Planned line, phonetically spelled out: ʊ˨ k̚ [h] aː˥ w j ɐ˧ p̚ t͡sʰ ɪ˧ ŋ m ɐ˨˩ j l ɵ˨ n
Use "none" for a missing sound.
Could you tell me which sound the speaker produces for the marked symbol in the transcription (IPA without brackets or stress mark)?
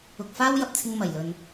f